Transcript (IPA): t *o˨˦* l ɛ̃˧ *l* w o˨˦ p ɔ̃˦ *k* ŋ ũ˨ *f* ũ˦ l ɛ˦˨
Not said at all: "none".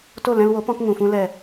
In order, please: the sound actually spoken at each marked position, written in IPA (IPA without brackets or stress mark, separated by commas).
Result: o˦˨, l, k, f